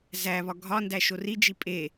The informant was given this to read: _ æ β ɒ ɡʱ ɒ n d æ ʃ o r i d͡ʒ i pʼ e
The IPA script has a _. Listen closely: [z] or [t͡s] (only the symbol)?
z